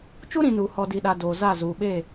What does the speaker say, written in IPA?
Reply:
t͡ʃ u˦ ɾ ĩ˨ n uː˨ h ɔ˨ d i˨ ɗ a˨ d oː˨ z a˦˨ z uː˨ ɓ eː˦˨

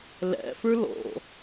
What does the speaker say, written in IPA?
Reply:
l æ̰ f ə˞ l ɔ̰

